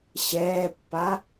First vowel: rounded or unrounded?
unrounded